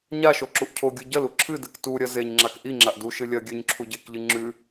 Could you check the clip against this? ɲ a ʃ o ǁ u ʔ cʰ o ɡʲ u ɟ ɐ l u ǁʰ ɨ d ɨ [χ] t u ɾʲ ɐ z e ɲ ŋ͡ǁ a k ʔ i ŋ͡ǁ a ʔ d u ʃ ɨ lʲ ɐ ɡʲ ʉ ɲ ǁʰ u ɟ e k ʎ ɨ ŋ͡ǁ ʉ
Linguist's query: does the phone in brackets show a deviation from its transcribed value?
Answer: yes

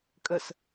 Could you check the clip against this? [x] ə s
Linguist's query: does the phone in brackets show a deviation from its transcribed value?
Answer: yes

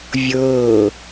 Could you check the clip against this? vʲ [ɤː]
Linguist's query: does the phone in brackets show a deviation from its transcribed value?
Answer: no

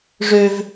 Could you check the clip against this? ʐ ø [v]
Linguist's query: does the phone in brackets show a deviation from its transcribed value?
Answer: no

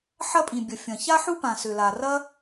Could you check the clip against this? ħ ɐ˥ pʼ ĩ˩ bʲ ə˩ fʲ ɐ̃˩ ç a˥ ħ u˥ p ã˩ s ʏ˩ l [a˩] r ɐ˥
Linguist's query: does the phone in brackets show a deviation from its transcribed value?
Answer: no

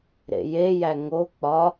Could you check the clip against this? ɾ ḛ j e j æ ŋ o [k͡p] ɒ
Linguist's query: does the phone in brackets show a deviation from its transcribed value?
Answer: no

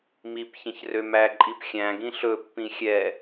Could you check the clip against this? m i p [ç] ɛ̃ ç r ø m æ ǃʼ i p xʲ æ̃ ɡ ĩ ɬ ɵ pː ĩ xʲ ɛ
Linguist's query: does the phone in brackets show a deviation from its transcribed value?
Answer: no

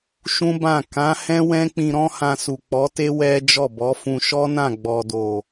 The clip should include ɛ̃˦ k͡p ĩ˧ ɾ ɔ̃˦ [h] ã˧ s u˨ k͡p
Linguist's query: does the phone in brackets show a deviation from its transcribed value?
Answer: no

